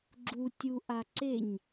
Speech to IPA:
ɡ͡ǁ u tʲ u ʔ a ǀ e ɲ

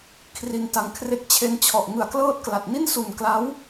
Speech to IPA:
kʰ r i˧ n t a˧ ŋ kʰ r e˥˩ k̚ t͡ɕʰ e˧ n t͡ɕʰ ɔ˨˩ ʔ ŋ ɯ˨˩ a̯ k l ɤː˥˩ t̚ k l a˨˩ t̚ n i˥˩ n s u˨˩ n k l a˦˥ w

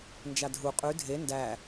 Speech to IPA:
n d͡ʒ a dʱ u qʼ ʉ dʱ e n d æ

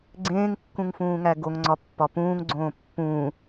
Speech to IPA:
ɡ͡ǀ ẽː ŋ kː ũ ŋ f ũː ŋ æ ɡ o ŋ ŋ͡ǀ ɒ pː ɒ p ũː ŋ ɡ͡ǀ õː pː ũː

